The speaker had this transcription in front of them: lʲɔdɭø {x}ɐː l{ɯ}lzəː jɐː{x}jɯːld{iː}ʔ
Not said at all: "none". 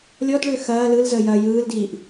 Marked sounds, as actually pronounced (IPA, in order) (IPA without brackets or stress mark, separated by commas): x, ɯ, none, iː